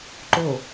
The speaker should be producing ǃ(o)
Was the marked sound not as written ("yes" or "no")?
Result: no